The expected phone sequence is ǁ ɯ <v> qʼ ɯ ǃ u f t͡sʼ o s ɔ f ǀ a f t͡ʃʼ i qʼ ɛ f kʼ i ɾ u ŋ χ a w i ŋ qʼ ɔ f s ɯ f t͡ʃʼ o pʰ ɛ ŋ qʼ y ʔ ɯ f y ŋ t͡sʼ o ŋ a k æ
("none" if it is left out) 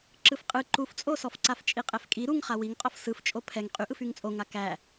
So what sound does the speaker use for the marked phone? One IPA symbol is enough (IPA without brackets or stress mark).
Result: f